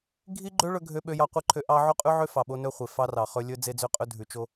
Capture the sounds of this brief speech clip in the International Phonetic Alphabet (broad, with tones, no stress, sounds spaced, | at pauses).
ɡʱ i˦ ɡ͡ǃ ø˦ ɭ ɵ˦ ɡʱ ø˦ ɓ ø˦ j ɑ˦ qʷ i˦ ǃʰ ø˦ ʔ ɑ˦ ʕ o˦ qʼ ʉ˦ ʕ ø˦ f ɑ˨ ɓ o˦ n ɵ˦ χʷ e˨ f ɑ˦ r ɑ˨ χ ɵ˦ lʲ ɵ˦ d͡z e˦ d͡z ø˦ qʼ ɵ˦ dʱ ʉ˨ t͡ʃ o˦